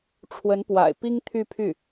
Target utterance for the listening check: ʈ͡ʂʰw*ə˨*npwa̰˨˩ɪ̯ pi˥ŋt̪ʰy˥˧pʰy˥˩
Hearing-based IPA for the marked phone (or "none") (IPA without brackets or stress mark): ə˧˥